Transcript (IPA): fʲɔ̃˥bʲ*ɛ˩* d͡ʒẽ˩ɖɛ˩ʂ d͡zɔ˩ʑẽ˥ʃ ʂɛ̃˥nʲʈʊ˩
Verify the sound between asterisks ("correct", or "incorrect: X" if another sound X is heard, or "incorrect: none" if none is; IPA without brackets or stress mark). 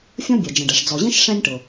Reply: correct